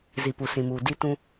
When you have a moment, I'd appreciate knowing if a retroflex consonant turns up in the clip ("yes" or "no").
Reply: no